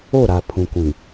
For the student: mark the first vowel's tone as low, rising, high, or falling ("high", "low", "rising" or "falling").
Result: falling